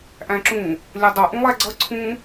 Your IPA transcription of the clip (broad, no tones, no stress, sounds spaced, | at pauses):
ʔ æ̃ ǁ ũ | lʲ ʌ dˤ ʌ ʔ ũ lˠ æ ɡ͡ǀ ʌ ǀʰ ũ